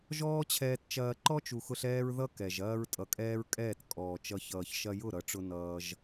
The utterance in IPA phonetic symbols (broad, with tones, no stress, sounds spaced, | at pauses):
ʒ ɔː˦ t͡ɕʰ ɛː˧ t t͡ʃ ɐː˧ ǃ ɔ˦ t͡ʃ u˨ x ʊ˧ ɬ ɛː˦ ɹ ð ʌ˦ k ɛ˨ ʒ ɐː˦ ɹ tʼ ʌ˨ kʼ ɛː˦ ɹ kʼ ɛː˦˨ t kʼ ɔː˨ t͡ʃ ʌ˧ ç ʌː˨ ç ʃ ɐ˧ j ʊ˦˨ ɾ ʌ˨ ʈ͡ʂ ʊ˧ n ʌː˦ ʒ